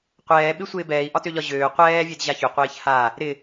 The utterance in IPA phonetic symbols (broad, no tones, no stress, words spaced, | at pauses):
qʷɛːɓɪsʷɪː bɛːi̯ʔɒtøʎɒ ʑøː qʷɛːvʲedʑa çʏqʷɪːç ha | ɾɪ